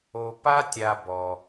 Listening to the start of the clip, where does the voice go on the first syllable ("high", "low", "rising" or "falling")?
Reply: low